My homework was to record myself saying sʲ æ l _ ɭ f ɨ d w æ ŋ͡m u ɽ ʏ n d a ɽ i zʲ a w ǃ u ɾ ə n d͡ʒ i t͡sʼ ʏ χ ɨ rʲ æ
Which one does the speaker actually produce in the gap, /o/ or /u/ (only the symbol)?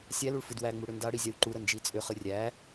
u